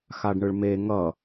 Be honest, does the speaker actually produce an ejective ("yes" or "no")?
no